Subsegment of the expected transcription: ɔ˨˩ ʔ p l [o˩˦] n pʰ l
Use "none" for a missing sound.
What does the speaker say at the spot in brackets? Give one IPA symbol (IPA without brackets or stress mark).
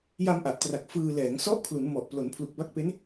o˩˦